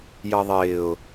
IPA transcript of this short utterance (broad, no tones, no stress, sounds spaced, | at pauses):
j ʌ ðˤ ɪː ʊ̯